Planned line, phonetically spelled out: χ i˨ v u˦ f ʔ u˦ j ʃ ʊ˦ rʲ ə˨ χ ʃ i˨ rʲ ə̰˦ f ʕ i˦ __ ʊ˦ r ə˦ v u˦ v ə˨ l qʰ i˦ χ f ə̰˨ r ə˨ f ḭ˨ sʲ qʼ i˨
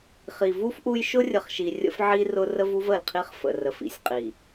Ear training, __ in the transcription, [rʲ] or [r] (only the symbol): r